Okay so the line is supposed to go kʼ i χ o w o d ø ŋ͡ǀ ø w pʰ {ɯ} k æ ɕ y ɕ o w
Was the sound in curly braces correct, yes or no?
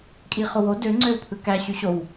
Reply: yes